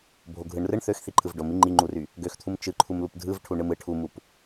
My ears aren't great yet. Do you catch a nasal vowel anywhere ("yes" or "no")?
no